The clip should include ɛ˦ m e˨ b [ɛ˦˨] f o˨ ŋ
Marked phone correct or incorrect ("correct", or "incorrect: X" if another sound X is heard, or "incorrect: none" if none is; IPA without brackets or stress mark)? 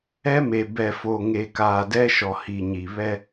incorrect: ɛ˨